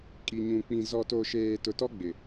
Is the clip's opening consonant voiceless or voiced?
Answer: voiceless